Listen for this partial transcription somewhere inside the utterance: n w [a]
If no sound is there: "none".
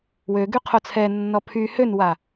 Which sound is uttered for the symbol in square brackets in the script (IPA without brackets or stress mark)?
a